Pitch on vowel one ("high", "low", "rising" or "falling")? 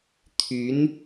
rising